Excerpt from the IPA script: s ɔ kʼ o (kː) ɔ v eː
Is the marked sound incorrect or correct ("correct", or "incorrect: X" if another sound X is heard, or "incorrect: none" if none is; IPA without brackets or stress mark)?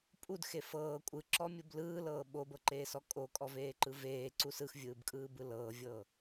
incorrect: kʼ